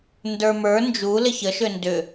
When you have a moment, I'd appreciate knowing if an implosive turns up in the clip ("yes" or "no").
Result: no